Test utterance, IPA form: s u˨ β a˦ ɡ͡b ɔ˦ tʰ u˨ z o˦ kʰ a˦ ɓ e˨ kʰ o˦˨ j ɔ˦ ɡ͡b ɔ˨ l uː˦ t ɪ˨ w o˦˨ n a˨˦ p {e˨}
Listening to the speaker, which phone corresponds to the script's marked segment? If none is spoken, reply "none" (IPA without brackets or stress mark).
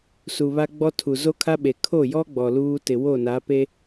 e˦